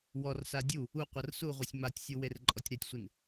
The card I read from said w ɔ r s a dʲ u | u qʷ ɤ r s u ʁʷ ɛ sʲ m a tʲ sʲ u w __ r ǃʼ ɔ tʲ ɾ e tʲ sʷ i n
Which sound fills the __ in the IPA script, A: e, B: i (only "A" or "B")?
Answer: A